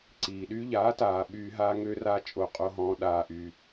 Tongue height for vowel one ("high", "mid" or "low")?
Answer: high